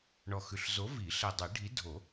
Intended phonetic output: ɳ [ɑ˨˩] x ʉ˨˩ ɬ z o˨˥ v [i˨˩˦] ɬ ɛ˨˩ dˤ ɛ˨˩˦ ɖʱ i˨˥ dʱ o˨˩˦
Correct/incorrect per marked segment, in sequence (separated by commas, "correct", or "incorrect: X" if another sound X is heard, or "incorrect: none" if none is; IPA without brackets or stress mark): incorrect: ɔ˨˩, correct